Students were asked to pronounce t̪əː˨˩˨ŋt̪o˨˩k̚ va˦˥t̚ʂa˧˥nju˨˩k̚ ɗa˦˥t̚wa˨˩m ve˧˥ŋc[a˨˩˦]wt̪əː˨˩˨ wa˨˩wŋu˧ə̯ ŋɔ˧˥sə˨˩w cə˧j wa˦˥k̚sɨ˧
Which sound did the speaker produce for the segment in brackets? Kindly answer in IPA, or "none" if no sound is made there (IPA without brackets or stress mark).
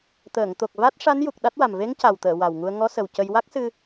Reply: a˨˩